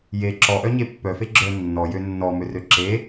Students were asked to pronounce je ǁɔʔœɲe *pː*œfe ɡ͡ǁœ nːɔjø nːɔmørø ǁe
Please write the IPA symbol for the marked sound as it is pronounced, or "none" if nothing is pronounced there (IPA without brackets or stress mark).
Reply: pː